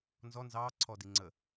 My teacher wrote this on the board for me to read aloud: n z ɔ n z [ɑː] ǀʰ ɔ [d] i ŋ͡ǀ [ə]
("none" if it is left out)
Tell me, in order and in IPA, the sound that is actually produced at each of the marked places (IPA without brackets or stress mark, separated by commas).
ɑː, d, ə